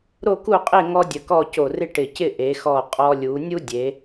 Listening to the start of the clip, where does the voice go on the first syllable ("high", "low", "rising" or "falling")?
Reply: falling